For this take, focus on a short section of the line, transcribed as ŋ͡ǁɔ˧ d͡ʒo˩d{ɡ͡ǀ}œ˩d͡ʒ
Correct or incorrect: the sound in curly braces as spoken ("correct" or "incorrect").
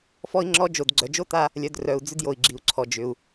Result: correct